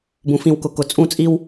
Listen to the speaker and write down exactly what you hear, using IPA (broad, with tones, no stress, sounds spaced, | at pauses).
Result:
b ũ˨ f ĩ˨ w k ʊ˨ k ʊ˨ t͡sʼ ũ˦˨ t͡sʼ i˦ w